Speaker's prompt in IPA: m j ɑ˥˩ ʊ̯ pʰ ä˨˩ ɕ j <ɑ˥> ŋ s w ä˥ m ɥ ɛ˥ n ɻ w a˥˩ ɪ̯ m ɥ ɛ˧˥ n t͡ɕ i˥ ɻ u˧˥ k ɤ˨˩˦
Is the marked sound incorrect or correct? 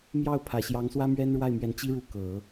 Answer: incorrect